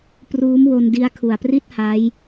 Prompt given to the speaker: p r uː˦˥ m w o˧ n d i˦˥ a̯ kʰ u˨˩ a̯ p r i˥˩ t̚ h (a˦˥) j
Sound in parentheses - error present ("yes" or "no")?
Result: no